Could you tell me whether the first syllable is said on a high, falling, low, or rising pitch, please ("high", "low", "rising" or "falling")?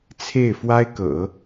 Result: falling